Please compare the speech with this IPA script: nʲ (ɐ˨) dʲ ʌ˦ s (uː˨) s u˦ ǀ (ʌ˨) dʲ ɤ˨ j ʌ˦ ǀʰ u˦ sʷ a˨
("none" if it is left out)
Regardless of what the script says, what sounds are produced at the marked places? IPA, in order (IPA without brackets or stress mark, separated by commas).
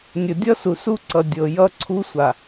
ə˨, u˨, ʌ˨